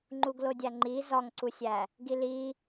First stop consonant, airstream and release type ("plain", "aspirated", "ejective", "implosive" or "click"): click